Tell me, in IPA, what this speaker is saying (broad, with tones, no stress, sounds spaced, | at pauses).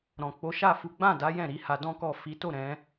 ɾ ɔ̃˨ k͡p o˨˦ ʃ a˦˨ f u˨˦ ɡ͡b ã˦˨ d a˨˦ j ɛ̃˦˨ ɾ i˨˦ h a˧ d ɔ̃˦ k ɔ˦˨ f i˨˦ t o˦˨ ɾ ɛ̃˨˦